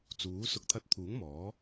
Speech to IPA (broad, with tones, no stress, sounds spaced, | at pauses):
t͡s uː˨˥ s ʊ˧ k̚ t̪ʰ ɐ˧ t̚ t̪ʰ uː˨˥ ŋ m ɔː˨˥